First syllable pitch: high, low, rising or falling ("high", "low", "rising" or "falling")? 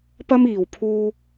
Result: high